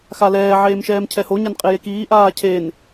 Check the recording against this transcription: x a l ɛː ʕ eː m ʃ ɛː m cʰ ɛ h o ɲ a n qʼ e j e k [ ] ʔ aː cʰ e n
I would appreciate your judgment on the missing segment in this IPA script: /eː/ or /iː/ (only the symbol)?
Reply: iː